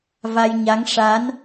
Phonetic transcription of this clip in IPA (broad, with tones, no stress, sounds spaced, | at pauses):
v a˧ j ɲ a˧˥ ŋ ʂ a˧˥ n